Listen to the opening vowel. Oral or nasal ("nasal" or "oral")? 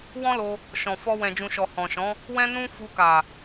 nasal